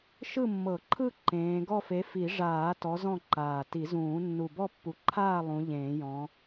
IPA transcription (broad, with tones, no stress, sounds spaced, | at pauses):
ʃ ɯ˦˨ mː ɤ˨˩˦ ǃʰ ɯ˦˨ ǃ ẽː˨˦ ɡ ɔ˦˨ f e˨˦ f i˨˩˦ ʐ aː˨˩˦ t ɔ˨˦ z ɔ̃˦˨ ǃ aː˨˩ t i˨˩˦ z ũː˨˩˦ nː u˨˩ b ɔ˦˨ pː u˨˩ ǃʰ aː˦˨ lˠ ũ˨˦ ʎ ẽː˨˩˦ j ɔ̃˨˦